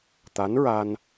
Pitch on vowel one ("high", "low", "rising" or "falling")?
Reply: rising